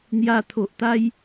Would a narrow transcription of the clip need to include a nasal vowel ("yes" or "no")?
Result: no